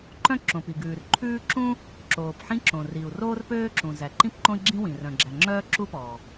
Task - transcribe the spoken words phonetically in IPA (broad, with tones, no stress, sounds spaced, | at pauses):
ǃ œ̃˥ ǁ õ˩ p i˩ ɡ ʉː˩ r ǃʰ ʉː˥ ǁ ũ˥ | ǁ oː˩ p ħ ĩ˥ ǁ õ˩ r i˩ u̯ r oː˥ r p øː˥ ǁ ũ˩ z æ˩ ǃ ĩ˥ p ǃ õ˥ i̯ ɡ͡ǁ ĩ˥ w ĩ˩ r œ̃˩ ɡ͡ǁ æ˩ ŋ͡ǁ œː˥ ǁ u˥ p ɔː˩